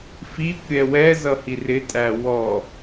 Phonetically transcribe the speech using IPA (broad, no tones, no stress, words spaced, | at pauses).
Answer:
fikʷ ɾʲɛwɛzʌ hirɪtʼæ wɔ